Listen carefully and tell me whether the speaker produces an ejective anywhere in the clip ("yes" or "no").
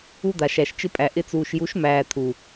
yes